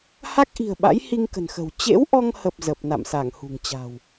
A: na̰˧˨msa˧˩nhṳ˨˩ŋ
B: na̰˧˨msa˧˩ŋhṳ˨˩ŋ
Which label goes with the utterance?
B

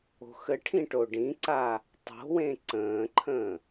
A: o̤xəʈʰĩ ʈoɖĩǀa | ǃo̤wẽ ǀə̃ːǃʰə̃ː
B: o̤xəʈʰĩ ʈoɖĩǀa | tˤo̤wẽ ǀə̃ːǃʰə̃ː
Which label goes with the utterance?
B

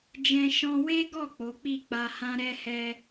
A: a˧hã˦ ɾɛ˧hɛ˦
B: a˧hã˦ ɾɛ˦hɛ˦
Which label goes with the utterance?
B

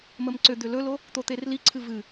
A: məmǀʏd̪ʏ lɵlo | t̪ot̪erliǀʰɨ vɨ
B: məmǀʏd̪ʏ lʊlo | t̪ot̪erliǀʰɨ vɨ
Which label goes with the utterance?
A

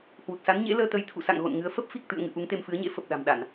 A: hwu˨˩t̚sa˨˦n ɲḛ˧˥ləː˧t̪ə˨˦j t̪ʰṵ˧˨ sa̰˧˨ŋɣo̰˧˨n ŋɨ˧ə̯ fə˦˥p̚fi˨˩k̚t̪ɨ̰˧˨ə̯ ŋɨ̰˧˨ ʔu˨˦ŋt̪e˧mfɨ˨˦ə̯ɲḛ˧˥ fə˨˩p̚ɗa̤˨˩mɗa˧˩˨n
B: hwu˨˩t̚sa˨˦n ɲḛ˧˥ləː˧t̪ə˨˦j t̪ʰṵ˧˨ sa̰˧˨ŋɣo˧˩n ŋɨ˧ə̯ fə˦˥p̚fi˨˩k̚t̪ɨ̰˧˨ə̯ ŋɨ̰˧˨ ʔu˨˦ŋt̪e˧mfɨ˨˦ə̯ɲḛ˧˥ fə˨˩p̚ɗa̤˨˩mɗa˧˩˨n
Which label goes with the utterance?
A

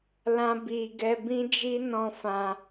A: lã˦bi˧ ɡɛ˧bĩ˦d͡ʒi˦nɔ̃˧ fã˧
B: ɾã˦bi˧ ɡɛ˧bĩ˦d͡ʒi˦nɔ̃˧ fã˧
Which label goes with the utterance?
A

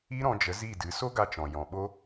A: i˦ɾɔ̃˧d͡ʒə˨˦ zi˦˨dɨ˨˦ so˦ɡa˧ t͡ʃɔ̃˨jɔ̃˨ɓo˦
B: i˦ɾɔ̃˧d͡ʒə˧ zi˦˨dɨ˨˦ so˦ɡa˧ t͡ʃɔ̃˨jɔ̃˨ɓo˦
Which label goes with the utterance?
A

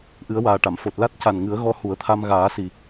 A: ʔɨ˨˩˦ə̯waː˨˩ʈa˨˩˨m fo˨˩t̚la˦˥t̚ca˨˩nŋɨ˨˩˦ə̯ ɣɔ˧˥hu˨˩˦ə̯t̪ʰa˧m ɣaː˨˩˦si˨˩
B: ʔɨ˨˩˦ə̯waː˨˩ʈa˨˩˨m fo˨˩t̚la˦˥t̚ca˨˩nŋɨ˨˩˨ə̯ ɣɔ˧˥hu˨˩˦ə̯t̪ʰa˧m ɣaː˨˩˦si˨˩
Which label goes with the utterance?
A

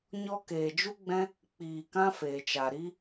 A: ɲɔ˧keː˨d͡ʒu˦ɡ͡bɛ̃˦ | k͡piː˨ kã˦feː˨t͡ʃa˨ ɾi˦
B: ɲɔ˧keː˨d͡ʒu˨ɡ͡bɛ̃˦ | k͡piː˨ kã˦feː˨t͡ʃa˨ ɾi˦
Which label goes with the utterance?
A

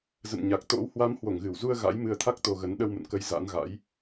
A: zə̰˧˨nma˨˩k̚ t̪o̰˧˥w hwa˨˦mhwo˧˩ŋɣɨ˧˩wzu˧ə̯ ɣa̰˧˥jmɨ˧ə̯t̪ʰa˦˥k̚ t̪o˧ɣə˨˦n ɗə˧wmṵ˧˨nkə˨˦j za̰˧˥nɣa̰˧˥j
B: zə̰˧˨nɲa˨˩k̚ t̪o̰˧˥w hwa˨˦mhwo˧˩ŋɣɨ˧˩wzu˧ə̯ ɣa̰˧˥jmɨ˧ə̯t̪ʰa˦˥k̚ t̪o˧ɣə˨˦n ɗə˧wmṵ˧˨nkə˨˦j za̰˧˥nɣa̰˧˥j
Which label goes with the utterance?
B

